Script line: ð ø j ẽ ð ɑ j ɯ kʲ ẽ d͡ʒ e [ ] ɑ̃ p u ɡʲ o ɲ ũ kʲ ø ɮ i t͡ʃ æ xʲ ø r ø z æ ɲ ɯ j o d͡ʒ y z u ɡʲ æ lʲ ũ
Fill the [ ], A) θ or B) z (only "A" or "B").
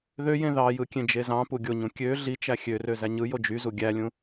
B